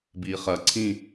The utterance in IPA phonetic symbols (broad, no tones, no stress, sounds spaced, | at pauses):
b iː χ ɐ ǀʰ ĩ